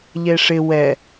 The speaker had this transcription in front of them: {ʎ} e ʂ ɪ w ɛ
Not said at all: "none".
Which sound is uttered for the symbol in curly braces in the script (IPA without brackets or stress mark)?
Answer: ʎ